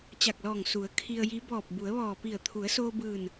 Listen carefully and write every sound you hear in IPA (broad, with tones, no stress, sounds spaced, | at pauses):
t͡ɕ a˧˩ k̚ l ɔː˧˩ ŋ s u˩˧ ə̯ kʰ i˧ ə̯ j i˧˥ b ɔː˧˩ p̚ b u˩˧ ə̯ ʋ ɔː˧˩ p i˧˩ ə̯ t̪ʰ u˩˧ ə̯ s oː˧ b ɯː˧˩ n